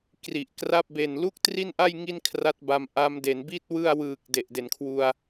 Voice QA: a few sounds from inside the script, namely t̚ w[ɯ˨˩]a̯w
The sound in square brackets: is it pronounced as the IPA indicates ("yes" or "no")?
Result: no